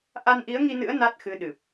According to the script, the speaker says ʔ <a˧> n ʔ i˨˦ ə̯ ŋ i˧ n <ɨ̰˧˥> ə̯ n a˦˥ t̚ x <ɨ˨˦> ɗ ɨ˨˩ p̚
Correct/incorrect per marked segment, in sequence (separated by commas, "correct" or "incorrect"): correct, correct, correct